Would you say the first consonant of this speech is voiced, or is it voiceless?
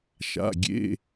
voiceless